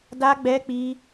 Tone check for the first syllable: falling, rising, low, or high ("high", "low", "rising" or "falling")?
high